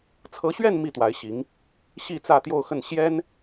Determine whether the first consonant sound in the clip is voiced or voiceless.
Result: voiceless